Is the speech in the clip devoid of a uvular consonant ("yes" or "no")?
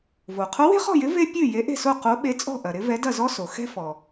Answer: no